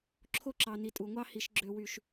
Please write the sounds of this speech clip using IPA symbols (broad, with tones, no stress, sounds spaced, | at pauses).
ǁʰ o˦ ǁ ɑ˨ n i˨ tʼ u˨ ŋʷ ɑ˦ h i˨ ʃ ɡ͡ǁ ø˦ w y˦ ʃ